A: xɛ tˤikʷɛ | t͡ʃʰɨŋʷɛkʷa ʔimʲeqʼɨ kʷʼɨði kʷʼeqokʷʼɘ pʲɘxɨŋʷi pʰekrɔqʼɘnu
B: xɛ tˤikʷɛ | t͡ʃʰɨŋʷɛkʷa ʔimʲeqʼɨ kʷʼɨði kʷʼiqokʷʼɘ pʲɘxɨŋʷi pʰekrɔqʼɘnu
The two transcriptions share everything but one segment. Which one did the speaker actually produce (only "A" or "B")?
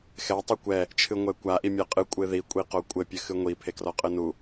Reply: B